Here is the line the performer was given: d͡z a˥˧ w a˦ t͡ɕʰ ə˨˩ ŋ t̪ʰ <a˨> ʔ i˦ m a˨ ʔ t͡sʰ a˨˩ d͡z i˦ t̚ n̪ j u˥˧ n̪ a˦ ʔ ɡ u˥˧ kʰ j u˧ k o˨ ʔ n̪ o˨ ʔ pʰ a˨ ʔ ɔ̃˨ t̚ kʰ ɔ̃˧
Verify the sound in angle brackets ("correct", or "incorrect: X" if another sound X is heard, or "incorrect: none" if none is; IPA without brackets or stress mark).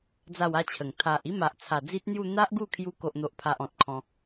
correct